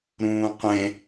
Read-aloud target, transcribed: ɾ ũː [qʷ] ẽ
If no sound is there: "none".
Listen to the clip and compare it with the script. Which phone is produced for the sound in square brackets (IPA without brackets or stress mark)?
qʷ